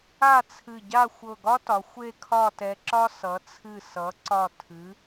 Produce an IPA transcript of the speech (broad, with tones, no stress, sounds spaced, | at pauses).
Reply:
a˥˧ t͡sʰ ɨ˧˩ ɟ a˥˧ xʷ ɤ˧˩ ɡ ɒ˥ t ɒ˩˧ xʷ e˥˧ kʰ ɒ˥˧ t ɛ˧ ǁ ɒ˥ s ʌ˩˧ t͡sʰ ɨ˧˩ s ʌ˩˧ ǀ ɒ˧˩ tʰ ɨ˩˧